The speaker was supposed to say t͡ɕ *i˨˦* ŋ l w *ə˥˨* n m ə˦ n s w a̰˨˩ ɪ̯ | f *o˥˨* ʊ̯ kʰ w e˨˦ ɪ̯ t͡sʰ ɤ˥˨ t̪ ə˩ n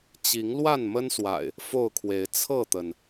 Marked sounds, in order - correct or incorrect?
correct, incorrect, correct

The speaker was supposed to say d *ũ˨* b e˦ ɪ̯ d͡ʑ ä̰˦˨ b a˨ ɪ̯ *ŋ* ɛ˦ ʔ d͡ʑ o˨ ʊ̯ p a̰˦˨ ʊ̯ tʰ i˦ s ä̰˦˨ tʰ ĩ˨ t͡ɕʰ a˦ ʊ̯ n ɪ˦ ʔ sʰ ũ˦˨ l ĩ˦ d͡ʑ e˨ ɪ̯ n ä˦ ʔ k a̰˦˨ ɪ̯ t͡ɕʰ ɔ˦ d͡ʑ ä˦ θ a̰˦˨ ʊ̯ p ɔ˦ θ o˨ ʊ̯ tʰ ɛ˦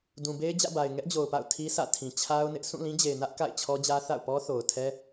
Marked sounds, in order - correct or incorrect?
correct, correct

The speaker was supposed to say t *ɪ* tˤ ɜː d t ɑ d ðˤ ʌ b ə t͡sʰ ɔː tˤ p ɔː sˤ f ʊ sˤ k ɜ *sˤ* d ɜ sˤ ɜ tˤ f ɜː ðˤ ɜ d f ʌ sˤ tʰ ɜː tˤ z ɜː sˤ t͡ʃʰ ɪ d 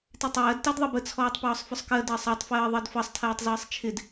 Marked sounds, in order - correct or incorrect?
incorrect, incorrect

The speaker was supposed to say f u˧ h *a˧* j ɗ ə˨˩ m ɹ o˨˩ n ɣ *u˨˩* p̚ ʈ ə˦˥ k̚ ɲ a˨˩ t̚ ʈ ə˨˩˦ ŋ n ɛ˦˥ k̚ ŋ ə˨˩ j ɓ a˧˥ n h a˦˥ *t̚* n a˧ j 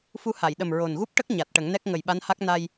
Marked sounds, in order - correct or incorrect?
incorrect, incorrect, incorrect

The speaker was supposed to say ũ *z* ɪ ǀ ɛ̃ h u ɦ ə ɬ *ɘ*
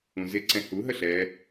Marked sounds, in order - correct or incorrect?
correct, incorrect

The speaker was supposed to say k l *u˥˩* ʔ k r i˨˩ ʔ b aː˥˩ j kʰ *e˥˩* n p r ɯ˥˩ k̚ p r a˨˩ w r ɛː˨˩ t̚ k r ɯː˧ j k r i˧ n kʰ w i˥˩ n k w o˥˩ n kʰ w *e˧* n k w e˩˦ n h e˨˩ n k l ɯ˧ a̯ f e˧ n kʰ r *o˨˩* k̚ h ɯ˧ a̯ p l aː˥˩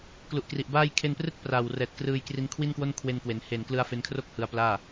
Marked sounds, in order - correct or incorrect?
incorrect, correct, correct, incorrect

